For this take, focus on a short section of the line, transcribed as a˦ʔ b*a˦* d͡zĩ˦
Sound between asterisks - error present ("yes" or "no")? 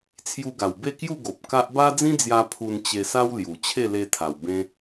no